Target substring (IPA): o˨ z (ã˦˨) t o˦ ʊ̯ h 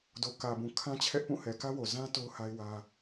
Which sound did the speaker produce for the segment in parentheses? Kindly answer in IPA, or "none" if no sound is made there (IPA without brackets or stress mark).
ã˦